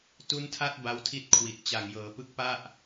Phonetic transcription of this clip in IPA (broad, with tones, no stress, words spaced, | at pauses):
tu˧ntʰa˦˥t̚ ba˦˥wtʰi˥˩t̚kʰwi˨˩t̚ t͡ɕa˨˩ŋjɤː˩˦pɯ˦˥k̚ pa˥˩ʔ